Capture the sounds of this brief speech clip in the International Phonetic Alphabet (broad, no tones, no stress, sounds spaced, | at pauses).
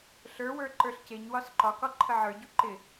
ɬ ə˞ w ə˞ ǃ ə˞ ɬ c e ɲ w ɒ s ǃ ɒ k ɒ ǃʰ ə ʕ ə˞ ɟ u ǃ ɪ